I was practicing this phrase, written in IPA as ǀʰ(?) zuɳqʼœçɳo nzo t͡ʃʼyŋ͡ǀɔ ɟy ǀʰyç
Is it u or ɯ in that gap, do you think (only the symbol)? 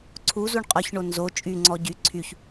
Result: u